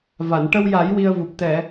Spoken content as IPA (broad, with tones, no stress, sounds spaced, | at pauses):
v a˨˩˨ n ʈ ə˧ w j a˨˩˦ j w i˧ ə̯ v u˨˩ p̚ t̪ ɛ˨˩˨